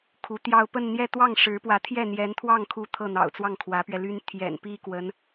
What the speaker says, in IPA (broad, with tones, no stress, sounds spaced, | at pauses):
kʰ u˧˥ t̪ j ɑ˥˧ ʊ̯ p ə˥˧ n n̪ j ɛ˥˧ t̪ w ɑ˥˩ ŋ ʂ ɻ̩˧˥ p w ä˧˥ t̪ʰ j ɛ˥˩ n̪ j ɛ˧˥ n t̪ʰ w ɑ˥˩ ŋ kʰ u˧˥ t̪ʰ ɤ˥˩ n̪ ɑ̰˨˩ ʊ̯ t͡s w ɑ˥˩ ŋ kʰ w ä˧˥ p ɥ ɛ˧ l y˥ n t̪ʰ j ɛ̰˨˩ n p i˥ k w ə˧˥ n